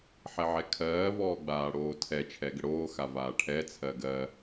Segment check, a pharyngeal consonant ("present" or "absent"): present